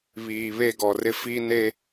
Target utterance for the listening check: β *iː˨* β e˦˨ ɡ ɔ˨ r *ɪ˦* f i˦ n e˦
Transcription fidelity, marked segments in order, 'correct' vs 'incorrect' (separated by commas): correct, correct